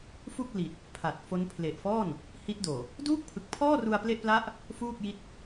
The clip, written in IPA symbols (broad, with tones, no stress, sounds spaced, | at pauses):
f u˥˩ k̚ l i˨˩ t̚ | pʰ a˨˩ t̚ f o˦˥ n pʰ l e˨˩ ʔ f ɔː˥˩ n | h i˦˥ t̚ d oː˨˩ | d uː˥˩ k̚ pʰ ɯ˨˩ k̚ pʰ ɔː˥˩ r u˧ a̯ p l e˥˩ ʔ p l a˥˩ ʔ | f uː˥˩ k̚ j i˦˥ t̚